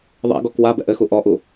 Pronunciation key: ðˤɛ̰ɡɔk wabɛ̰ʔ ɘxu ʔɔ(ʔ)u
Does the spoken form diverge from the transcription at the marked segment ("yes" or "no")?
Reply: no